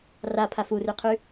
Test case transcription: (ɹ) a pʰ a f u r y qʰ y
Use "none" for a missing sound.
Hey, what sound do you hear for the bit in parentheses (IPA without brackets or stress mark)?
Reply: r